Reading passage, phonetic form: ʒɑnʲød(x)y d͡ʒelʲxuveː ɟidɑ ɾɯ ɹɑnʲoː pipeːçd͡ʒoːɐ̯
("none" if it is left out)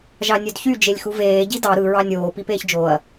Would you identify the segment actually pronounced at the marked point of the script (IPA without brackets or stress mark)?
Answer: ç